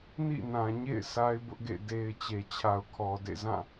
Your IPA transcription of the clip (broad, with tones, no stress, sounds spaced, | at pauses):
n ḭ˦˨ n ã˨ ɲ ḛ˦˨ ɪ̯ sʰ a˦ ɪ̯ b ʊ˦ ʔ ɡ ḛ˦˨ d e˨ ɪ̯ t͡ɕ e˨ t͡ɕʰ a˨ ʊ̯ kʰ ɔ˨ d ḛ˦˨ z ã˦˨